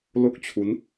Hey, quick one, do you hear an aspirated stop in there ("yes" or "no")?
yes